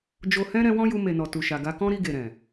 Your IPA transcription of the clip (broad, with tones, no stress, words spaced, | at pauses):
d͡ʒo˨hɛ̃˧ ɾɛ̃˧wɔ̃˦ju˧ me˨nɔ˨ tu˨ʃa˨ɡa˧kɔ̃˦ ɾi˧ɡe˨ɾɛ̃˨